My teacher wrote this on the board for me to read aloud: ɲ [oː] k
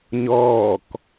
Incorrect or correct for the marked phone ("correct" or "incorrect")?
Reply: incorrect